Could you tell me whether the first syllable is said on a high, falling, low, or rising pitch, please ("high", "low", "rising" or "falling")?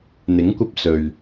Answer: rising